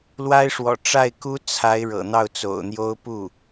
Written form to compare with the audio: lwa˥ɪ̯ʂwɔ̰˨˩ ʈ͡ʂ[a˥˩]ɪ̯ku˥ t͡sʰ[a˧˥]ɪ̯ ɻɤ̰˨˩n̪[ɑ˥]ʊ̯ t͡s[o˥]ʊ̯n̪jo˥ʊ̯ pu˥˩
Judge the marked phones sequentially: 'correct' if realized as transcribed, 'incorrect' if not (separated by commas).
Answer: correct, correct, incorrect, incorrect